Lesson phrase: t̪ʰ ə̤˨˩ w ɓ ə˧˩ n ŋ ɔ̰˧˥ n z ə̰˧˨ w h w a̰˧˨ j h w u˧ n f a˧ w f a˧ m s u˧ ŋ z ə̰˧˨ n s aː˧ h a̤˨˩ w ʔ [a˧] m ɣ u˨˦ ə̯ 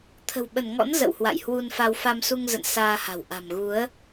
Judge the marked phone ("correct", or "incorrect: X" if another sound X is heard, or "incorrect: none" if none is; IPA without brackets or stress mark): incorrect: a̤˨˩